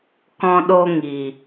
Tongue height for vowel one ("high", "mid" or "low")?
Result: mid